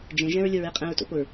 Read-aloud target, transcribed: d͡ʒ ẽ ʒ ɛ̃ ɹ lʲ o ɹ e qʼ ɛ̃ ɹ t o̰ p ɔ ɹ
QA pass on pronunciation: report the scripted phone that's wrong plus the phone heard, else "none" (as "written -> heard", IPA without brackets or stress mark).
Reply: ɔ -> o